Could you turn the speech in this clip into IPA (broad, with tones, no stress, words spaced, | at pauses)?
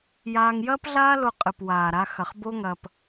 jaː˧ŋ jɐː˦pɮaː˦lo˧qʼɨ˨p waː˨ɾa˧ xɐ˨χ bo˦ŋɐ˧p